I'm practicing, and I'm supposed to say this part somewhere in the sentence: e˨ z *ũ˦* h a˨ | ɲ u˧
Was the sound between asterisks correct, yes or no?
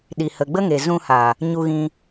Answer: no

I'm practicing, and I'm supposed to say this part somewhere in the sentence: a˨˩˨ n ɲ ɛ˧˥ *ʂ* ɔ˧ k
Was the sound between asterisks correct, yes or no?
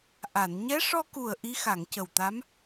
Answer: yes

